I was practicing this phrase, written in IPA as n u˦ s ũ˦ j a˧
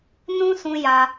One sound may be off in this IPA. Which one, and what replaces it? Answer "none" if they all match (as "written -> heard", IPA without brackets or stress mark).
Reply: u˦ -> ũ˦